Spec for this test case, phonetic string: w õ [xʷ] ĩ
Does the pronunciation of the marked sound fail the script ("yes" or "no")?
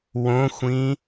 no